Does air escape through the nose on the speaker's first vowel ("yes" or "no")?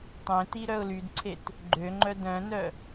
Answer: yes